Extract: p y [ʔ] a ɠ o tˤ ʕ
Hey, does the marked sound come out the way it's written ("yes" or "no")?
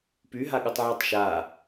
no